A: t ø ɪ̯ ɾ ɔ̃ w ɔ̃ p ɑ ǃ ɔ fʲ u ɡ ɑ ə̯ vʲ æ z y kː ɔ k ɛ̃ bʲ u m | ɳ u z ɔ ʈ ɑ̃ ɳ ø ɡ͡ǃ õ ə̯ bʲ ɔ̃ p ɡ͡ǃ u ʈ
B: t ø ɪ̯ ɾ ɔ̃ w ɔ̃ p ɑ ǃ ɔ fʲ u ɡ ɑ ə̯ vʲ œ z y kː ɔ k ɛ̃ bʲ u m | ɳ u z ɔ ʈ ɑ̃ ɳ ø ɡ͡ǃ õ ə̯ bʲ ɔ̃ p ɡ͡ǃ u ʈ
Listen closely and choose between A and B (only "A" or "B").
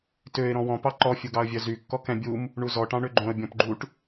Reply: B